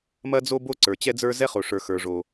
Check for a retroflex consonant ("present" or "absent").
present